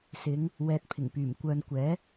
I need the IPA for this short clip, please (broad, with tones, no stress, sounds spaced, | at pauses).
s ɪ˨˧ ŋ | w ɛː˧ t̚ pʰ ɪ˨˩ ŋ p yː˨˩ m kʷ œː˨ n kʷ ɛː˨˥